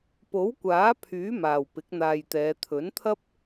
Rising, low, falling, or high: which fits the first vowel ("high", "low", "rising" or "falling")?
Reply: rising